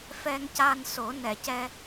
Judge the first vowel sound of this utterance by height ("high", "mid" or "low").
mid